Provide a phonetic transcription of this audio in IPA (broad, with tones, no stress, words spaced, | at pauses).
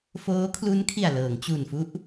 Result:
foː˦˥kʰlu˦˥nkʰi˨˩a̯ lɤː˩˦ŋ t͡ɕu˨˩nfu˦˥ʔ